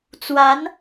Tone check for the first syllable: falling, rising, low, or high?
rising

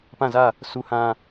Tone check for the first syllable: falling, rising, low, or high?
falling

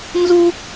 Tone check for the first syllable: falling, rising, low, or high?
high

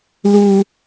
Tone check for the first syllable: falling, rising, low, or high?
low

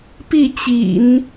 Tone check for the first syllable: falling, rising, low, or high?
falling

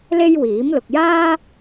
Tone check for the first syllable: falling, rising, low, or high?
high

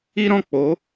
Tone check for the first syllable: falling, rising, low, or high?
high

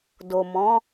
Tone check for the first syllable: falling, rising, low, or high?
low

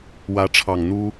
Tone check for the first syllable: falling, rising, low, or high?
rising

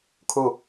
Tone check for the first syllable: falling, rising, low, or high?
falling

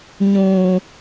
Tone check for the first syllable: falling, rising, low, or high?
low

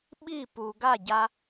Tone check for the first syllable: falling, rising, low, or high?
falling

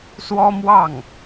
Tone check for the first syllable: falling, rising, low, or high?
high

